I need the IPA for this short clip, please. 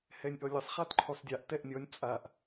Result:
h ɛ nʲ ʔ ɔ lʲ ɘ sˤ χ a t ǃʰ u sˤ dʲ a ʔ t ɛ ʔ nʲ ɔ nʲ t͡sʼ a ʔ

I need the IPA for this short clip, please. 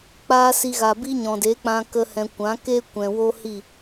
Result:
k͡p aː˦ s i˧ ɣ a˨ b i˦ ɲ ɔ̃˨ d e˨˦ k͡p ã˦ k ə˦ h ɛ̃˧ kʷ ã˨˦ k e˦ kʷ ɛ̃˨ w o˦ h i˦˨

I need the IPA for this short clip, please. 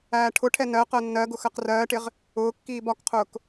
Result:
æː ʈʰ ʊ ʈʰ ɛ n ɜ q ɜ nː ɜ ɡ ʊ x ɜ q r ɜː ʈ ɪ ʁ | ʊː kː iː b ɒ k qʰ ʊː k

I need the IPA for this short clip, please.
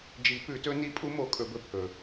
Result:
d͡ʒ i˨˩˦ p ʉ˨˩˦ t ɵ˧˥ n i˧˥ pʼ u˧˥ m o˨˩˦ kʼ ɵ˨˩˦ b ɵ˧ pʰ ɵ˨˩

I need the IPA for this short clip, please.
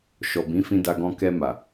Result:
ʃ ɔ˨ b ĩ˨˦ f ĩ˦ d a˦ ɡ ɔ̃˦ k ɛ˧ m a˨

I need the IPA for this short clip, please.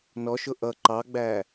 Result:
n ɔ ʃ ʊ ʔ ʌ ǃ ɑ ɡ͡b æː

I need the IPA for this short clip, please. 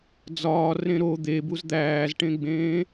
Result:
d͡z ɒː r ẽ ɾ o d̪ e b u z d̪ æː z ʈ ẽ ɡ͡b ẽː

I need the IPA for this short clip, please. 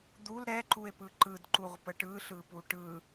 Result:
d̪ u l ɾ ɛ ǃ u e̯ p ɯ ǃ ɯ d ǃ u ʁ p ə ʈ ɯ ɬ ɯ p u ʈ ɯ

